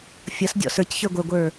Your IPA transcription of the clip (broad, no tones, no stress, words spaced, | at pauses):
fʲʌsdʲɔ̰ sə˞cçə˞ ɡʷə˞ɡʷə˞